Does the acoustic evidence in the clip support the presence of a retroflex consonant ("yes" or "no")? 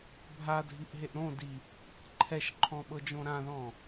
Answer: no